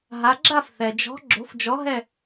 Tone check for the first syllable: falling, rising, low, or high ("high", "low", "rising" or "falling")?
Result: rising